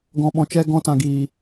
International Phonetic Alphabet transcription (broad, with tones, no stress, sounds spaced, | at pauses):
ɡ ɔ̃˧ ɓ ɔ̃˨ t͡ʃ ɛ˦ ɡ ɔ̃˧ t ã˨ ɡ iː˨